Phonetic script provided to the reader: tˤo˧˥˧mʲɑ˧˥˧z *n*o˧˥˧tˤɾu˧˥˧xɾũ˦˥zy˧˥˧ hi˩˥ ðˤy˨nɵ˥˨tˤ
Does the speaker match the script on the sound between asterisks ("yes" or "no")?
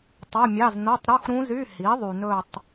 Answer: yes